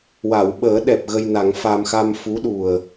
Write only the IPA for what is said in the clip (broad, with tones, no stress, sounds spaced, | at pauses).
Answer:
w a˨˩˨ w ɓ əː˨˩˦ ɗ ɛ˨˩ p̚ ɣ ə˧ j n a˨˩˦ ŋ f a˧ m x a˧ m f u˧˥ ɗ u˨˩ ə̯